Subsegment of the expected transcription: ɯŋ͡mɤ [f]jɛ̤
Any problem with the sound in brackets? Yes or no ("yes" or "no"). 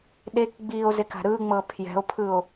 yes